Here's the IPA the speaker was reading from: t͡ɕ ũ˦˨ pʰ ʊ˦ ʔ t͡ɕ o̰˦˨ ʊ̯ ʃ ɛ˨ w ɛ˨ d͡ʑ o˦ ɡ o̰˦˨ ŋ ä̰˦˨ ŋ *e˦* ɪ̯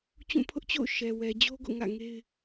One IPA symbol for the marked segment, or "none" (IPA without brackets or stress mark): e˦